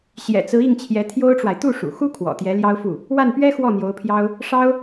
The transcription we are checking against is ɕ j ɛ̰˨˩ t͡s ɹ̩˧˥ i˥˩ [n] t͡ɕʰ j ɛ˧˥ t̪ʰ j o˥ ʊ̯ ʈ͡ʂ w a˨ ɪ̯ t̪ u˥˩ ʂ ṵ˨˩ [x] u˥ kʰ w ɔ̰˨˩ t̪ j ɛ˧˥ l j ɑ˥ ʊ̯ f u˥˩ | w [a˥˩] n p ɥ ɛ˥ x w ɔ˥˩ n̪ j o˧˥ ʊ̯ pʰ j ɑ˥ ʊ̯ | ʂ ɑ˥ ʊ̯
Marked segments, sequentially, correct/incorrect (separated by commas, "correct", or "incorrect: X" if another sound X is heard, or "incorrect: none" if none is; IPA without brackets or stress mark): incorrect: ŋ, correct, correct